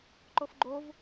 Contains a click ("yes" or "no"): yes